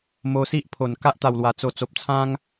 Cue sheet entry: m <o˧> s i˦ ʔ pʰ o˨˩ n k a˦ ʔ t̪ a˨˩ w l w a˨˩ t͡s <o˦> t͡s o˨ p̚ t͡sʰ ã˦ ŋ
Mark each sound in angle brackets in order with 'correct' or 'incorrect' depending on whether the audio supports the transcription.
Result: correct, incorrect

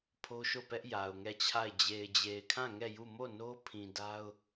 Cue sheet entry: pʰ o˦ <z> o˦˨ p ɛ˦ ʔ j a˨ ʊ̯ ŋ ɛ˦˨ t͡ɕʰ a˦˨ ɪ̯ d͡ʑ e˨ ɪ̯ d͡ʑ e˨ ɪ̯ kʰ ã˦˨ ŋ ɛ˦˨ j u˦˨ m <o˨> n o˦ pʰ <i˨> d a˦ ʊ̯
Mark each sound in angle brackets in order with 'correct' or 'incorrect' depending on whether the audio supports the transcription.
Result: incorrect, incorrect, incorrect

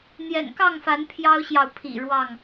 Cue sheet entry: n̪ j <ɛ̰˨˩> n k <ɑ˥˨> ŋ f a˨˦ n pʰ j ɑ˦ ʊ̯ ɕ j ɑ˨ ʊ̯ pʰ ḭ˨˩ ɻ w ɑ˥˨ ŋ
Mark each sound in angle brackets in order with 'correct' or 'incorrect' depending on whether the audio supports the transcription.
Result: correct, correct

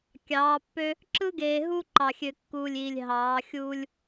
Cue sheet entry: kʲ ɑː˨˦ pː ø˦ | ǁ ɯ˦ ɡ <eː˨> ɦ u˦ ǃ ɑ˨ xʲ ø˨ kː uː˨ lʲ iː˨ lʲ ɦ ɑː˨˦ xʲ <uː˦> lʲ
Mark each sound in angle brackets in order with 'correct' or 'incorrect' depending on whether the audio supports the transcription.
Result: correct, correct

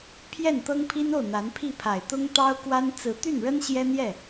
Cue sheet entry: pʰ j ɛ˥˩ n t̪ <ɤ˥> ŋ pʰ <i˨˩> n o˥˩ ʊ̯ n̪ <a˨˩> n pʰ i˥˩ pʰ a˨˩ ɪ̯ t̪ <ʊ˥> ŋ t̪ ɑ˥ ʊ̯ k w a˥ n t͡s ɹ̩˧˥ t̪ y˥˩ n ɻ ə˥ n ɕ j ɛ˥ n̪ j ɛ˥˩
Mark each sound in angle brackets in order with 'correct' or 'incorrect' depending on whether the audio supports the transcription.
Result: correct, incorrect, incorrect, correct

